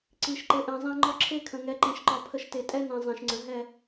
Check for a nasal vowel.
present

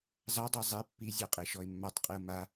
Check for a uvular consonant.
present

